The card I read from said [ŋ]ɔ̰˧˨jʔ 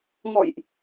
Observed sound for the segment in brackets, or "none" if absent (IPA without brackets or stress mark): ŋ